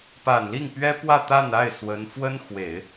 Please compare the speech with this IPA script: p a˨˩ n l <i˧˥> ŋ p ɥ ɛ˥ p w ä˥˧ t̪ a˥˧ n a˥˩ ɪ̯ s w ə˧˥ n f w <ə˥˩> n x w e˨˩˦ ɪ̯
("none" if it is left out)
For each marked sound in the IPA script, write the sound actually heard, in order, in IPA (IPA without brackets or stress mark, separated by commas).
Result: i˥˩, ə˥